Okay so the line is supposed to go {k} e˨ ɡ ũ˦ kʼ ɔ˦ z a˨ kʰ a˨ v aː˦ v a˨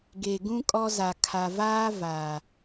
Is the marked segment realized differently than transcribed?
yes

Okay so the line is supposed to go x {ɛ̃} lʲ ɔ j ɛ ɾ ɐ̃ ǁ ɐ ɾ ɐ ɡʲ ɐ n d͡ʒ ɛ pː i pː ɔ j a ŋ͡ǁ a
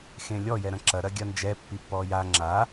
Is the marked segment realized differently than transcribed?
yes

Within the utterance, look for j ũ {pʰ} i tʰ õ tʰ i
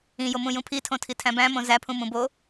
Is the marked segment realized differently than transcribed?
no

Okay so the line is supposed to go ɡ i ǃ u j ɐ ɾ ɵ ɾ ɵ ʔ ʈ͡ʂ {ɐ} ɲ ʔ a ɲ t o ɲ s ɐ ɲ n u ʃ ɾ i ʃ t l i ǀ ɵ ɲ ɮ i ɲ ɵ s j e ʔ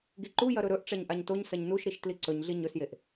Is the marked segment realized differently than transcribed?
no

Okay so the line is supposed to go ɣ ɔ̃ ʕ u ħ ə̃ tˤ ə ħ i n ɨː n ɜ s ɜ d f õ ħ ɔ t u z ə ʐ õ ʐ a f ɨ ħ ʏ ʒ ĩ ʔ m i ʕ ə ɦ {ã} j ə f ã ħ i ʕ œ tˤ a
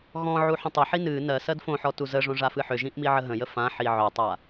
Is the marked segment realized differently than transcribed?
yes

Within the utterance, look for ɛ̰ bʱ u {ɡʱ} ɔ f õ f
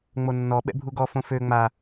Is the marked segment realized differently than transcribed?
yes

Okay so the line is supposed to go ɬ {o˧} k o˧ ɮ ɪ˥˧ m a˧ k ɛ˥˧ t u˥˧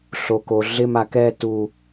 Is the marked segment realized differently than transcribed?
no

